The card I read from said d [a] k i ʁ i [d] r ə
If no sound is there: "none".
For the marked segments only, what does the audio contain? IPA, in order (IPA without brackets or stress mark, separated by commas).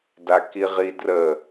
a, d